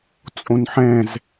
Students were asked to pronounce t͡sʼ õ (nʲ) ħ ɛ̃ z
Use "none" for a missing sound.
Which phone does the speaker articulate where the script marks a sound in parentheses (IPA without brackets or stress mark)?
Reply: n